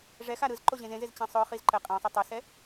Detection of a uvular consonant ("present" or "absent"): present